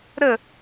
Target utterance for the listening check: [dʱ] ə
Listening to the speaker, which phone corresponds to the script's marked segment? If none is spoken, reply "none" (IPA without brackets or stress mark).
ɾ